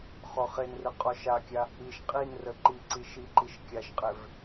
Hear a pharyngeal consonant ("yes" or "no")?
no